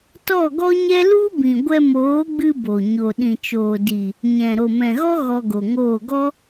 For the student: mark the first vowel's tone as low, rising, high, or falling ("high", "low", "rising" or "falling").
falling